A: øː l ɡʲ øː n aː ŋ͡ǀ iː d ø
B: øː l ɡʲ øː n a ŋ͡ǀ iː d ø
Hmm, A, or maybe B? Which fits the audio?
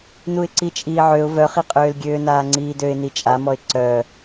A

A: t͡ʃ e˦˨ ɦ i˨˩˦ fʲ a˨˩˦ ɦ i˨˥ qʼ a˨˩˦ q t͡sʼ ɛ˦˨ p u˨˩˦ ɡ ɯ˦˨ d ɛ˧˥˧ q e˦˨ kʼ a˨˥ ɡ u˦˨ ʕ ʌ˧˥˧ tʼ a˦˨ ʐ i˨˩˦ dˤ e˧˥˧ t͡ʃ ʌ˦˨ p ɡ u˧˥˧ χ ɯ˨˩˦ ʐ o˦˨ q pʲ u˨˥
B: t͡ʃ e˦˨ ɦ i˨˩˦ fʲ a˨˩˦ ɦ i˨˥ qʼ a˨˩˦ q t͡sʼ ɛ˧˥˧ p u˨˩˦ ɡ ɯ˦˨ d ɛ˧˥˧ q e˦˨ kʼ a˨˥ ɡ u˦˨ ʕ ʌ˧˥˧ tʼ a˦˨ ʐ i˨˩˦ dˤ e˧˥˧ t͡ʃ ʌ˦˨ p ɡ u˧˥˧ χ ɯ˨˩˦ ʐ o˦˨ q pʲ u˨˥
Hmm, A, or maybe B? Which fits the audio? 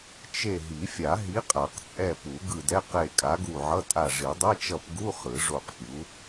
A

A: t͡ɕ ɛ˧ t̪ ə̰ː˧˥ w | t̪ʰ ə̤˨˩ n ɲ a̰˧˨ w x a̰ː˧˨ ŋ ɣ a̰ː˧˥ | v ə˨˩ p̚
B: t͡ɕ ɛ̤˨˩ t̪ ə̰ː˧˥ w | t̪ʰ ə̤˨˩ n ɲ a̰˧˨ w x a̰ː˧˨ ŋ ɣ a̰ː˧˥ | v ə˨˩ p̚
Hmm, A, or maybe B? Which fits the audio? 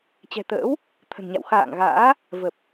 B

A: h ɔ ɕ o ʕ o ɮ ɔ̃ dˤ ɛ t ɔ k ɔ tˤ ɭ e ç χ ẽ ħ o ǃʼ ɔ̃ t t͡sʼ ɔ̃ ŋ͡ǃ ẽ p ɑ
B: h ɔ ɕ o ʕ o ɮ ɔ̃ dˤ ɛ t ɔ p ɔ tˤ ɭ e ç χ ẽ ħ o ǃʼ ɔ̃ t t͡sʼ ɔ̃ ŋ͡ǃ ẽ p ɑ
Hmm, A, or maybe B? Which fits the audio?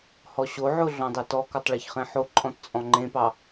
A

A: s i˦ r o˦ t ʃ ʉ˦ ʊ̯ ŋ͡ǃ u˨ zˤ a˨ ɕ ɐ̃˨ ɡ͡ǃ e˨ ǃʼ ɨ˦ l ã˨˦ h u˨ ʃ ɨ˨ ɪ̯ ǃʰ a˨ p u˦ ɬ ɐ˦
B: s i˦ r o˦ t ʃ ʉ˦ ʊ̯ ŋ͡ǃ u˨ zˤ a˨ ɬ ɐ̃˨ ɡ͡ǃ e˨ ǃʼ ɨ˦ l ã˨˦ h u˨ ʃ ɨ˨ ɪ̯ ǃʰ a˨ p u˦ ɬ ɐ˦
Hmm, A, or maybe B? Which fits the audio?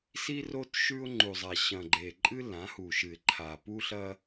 A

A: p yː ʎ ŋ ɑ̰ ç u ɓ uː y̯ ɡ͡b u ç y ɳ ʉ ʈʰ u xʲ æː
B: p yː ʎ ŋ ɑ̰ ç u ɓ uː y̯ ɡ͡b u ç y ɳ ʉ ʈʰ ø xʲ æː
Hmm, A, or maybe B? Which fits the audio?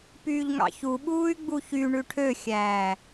B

